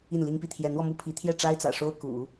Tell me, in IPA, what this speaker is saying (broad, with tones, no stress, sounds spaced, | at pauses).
i˥˩ n l i˥ ŋ p i˥˩ t̪ʰ j ɛ˧˥ n w ɔ˧ m u˥ pʰ i˧˥ t̪ʰ j ɛ˥˩ ʈ͡ʂ a˥ ɪ̯ t͡s ä̰˨˩ ʂ o˥ ʊ̯ k ṵ˨˩˦